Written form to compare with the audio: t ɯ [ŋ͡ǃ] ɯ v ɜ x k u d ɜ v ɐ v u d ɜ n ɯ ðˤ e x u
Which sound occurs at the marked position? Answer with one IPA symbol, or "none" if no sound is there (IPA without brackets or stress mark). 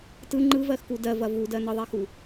ŋ͡ǃ